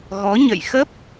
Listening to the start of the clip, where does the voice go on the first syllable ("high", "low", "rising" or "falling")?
rising